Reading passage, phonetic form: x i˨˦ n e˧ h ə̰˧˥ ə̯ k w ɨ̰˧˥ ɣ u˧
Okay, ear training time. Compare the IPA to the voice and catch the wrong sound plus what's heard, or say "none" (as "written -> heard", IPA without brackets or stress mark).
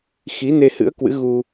ə̰˧˥ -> ɨ̰˧˥